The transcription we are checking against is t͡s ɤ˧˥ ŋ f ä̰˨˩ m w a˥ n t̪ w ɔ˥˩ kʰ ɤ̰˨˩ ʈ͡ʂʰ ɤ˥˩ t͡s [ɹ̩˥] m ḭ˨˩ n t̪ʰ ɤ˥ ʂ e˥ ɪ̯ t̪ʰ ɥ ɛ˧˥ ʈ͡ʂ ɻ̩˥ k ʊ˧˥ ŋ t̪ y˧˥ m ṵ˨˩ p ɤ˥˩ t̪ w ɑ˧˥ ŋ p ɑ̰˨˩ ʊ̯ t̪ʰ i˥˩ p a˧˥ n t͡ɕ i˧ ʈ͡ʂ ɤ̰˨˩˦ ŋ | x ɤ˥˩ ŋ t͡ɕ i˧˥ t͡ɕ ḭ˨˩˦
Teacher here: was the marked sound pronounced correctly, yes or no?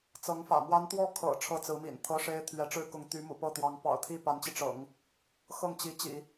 no